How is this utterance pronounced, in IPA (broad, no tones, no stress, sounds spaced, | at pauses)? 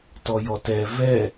t ɔ j ɔ t ɛ v ɛ